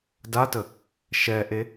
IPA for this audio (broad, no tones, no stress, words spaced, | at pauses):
datə | ʃɛʔe